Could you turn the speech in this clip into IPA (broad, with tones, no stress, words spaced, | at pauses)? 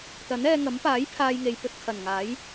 t̪ɐ˨˥nɛː˧ŋɐ˨˥m paː˨˥j pʰaː˧jŋe˨j pɵ˧t̚ kʰɐ˨˩nŋaː˨˥j